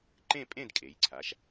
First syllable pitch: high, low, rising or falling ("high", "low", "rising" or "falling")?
falling